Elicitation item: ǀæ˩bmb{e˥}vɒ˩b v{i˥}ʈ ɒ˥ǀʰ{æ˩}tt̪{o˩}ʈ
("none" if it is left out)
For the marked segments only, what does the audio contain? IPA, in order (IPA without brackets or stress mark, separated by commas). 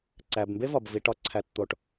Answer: e˥, i˩, æ˩, o˩